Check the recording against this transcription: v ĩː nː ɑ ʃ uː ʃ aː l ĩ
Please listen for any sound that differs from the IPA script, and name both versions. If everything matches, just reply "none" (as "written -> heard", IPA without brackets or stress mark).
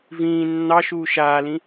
none